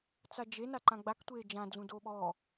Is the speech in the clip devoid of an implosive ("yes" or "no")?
no